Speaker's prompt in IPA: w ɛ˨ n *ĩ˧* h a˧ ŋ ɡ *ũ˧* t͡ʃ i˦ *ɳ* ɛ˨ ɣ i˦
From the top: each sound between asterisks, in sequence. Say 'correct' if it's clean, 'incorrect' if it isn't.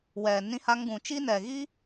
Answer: correct, incorrect: ũ˨, incorrect: n

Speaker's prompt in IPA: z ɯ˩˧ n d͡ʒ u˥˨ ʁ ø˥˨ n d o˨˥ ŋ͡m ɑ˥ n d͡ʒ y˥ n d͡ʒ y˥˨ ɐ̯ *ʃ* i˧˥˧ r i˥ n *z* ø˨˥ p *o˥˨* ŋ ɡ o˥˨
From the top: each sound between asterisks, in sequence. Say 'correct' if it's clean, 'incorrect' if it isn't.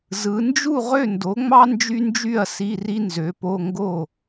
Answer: incorrect: s, correct, incorrect: o˧˥˧

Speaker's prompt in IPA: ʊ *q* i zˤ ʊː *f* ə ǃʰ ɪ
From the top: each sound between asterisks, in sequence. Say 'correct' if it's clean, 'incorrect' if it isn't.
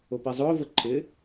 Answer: incorrect: p, incorrect: v

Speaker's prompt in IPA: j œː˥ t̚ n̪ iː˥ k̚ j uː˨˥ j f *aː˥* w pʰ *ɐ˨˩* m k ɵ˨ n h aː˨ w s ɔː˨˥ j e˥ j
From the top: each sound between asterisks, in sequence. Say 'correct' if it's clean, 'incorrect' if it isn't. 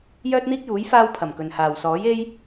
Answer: correct, correct

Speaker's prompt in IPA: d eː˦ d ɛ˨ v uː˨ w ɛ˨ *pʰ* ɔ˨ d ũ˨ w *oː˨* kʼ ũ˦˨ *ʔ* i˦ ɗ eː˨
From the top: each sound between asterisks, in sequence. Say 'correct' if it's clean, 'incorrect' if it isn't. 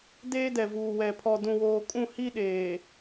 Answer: correct, correct, incorrect: h

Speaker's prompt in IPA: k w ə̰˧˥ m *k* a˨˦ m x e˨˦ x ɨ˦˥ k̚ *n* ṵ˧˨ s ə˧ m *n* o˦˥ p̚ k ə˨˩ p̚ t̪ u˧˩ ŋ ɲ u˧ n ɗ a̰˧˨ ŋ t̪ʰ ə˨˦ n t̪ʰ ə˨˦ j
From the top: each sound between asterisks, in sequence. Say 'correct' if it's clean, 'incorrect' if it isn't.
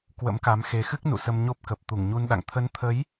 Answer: correct, correct, incorrect: ɲ

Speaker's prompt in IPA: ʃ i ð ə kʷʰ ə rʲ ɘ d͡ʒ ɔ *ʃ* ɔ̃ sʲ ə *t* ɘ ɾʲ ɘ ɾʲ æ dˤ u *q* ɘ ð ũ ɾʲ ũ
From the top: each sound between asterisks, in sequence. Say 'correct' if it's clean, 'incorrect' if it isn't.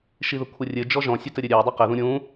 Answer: incorrect: ʒ, correct, correct

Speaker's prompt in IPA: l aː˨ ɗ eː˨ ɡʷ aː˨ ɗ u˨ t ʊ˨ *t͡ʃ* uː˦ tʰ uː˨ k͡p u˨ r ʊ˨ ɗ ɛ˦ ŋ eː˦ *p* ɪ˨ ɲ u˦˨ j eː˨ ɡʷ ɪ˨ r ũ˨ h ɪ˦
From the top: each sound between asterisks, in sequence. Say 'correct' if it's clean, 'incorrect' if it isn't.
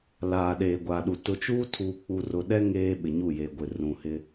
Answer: correct, incorrect: ɓ

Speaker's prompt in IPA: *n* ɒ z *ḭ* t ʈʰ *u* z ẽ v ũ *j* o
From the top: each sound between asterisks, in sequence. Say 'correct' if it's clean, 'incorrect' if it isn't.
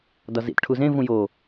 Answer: incorrect: d, correct, correct, correct

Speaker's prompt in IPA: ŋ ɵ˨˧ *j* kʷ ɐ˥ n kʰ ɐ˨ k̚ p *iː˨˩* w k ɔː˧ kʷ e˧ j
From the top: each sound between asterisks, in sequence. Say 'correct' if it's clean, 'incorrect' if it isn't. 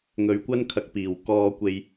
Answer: incorrect: ɥ, correct

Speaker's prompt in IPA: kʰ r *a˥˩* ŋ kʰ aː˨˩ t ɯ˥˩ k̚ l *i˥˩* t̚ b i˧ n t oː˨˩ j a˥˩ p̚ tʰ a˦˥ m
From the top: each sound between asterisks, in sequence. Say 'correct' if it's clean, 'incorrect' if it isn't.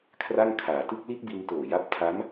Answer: correct, incorrect: i˦˥

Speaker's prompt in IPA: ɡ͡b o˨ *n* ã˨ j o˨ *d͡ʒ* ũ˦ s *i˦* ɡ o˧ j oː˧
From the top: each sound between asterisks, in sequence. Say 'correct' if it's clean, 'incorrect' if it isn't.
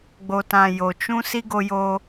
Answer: incorrect: t, incorrect: t͡ʃ, correct

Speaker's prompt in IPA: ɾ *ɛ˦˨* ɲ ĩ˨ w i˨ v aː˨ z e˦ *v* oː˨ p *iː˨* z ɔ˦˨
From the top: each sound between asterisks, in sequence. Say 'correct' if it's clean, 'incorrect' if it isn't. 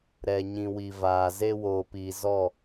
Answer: incorrect: ɛ˨, incorrect: w, correct

